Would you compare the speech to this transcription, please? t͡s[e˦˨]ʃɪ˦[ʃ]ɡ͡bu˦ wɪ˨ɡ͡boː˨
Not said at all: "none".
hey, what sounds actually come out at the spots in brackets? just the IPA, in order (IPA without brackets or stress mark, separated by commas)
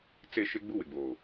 e˦˨, none